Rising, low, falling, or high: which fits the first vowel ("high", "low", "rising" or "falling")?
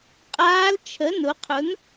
rising